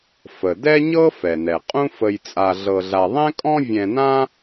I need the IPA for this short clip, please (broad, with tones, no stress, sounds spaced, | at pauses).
f ə˩ d ɛ˥ ɲ ɤ˥ f ɛ˩ n ɛ˩ qʼ ũ˥ f ə˧ j t͡sʼ a˧ ɮ ɤ˧ ɮ a˧ ðˤ ɛ̃˥ kʼ ɔ̃˥ vʲ ɛ̃˧ n ã˥